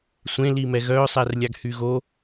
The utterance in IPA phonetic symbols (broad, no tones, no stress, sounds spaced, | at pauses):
sʷ ẽ l iː m ɛ ɣ œː sˤ ɛ r lʲ a ɡ h y ɣ o